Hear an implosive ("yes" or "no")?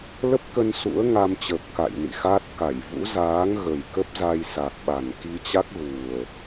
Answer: yes